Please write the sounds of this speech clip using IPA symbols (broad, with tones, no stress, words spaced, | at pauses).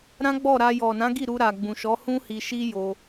ɾã˦ɡ͡bɔ˦˨ɾa˧ jɔ˨nã˨˦ɡi˦˨ ɾu˧ɾa˨ɡ͡bũ˨ʃɔ˨˦ hũ˦hi˧ʃi˦jo˧